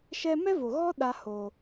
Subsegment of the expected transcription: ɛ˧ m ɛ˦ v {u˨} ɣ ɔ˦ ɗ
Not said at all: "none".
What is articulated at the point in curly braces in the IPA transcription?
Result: o˨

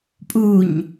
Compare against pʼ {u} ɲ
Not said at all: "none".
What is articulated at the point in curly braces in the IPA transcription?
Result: u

